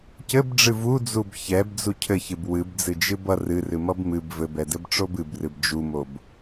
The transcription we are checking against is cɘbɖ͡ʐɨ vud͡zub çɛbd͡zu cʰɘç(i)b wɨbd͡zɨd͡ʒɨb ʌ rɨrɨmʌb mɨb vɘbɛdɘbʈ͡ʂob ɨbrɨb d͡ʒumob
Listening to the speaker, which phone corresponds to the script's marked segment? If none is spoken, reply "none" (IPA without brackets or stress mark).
ɨ